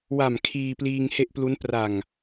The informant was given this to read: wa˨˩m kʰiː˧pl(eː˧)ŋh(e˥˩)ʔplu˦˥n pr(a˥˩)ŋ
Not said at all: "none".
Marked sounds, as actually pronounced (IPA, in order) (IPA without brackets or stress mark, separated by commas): iː˧, e˥˩, a˨˩